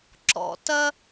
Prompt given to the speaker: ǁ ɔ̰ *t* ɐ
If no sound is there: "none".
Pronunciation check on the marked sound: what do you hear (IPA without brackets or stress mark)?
t